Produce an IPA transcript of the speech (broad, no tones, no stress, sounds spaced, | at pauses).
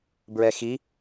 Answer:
b ɹ ɛ x i